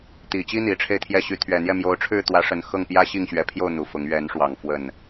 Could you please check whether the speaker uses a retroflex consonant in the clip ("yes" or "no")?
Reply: yes